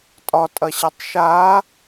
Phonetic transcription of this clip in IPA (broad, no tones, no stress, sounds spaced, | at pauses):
tʼ ɒ tʼ ɐ ɕ ɐ tˤ ʃ a